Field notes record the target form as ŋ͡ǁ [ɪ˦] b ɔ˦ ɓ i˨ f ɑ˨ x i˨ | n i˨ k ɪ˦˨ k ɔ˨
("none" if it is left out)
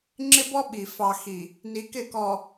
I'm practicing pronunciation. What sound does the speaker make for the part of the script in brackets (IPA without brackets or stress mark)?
ɪ˦